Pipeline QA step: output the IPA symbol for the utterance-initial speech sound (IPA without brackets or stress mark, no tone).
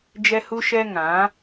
d͡ʒ